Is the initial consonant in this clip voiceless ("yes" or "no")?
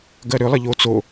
no